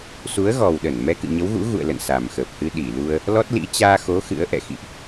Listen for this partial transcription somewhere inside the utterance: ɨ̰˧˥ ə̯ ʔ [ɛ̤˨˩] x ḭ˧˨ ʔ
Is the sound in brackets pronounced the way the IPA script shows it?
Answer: no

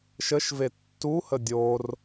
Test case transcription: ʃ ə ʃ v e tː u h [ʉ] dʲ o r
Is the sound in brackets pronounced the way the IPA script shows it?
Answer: no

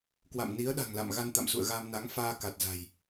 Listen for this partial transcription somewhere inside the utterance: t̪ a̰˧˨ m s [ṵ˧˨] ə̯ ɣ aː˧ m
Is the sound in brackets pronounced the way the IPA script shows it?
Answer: yes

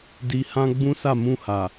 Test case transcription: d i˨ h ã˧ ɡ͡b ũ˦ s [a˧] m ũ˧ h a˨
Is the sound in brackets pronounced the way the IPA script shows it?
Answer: no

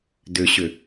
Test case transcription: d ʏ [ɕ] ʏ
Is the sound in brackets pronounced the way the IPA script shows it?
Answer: yes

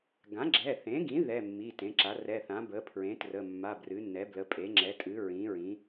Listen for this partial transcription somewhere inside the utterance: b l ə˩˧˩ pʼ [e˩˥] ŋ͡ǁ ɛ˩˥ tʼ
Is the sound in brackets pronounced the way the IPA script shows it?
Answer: yes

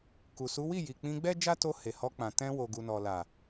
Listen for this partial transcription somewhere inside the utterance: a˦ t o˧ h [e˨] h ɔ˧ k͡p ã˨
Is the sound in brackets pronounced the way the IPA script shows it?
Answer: yes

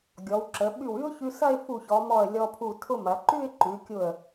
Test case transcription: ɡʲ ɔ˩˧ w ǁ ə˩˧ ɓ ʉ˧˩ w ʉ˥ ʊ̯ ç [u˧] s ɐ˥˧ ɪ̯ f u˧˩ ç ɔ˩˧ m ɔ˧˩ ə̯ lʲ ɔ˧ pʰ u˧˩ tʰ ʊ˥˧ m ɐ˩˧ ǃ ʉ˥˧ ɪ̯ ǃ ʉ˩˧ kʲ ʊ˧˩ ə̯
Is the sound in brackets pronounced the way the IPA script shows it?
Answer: no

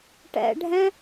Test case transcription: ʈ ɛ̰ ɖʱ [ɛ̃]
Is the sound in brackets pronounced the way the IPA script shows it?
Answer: yes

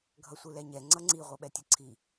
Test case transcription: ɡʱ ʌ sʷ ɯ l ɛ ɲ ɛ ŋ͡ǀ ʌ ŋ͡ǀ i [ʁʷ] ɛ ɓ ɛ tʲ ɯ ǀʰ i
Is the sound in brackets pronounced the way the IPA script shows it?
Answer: yes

